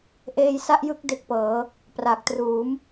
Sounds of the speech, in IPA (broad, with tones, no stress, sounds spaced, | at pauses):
ʔ eː˧ j s a˥˩ ʔ j ɯ˦˥ k̚ d e˦˥ k̚ p ɤː˩˦ | p r a˨˩ k̚ t r uː˩˦ m